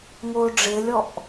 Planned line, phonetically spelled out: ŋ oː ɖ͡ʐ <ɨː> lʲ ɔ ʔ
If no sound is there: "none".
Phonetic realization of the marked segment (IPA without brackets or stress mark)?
ɪː